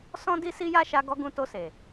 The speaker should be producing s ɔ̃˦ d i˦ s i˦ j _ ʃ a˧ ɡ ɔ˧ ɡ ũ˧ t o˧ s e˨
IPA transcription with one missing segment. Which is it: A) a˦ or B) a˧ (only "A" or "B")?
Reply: A